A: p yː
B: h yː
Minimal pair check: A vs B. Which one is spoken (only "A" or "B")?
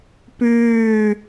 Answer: A